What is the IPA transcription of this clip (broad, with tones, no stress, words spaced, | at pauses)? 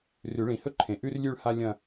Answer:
rʉ˨˩˦ɭĩ˨˩˦hɵ˥ ǃʰẽ˨˩ʔʉ˥rlʲʉ˥˧ɭ ha˥lʲɐ̃˥˧